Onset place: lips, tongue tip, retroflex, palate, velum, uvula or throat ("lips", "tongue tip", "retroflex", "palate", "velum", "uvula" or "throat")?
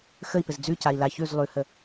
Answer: velum